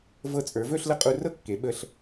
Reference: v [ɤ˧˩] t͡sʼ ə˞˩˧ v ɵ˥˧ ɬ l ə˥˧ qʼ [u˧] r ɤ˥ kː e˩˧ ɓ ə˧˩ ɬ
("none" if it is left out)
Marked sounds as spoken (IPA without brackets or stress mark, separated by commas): ɤ˧, u˧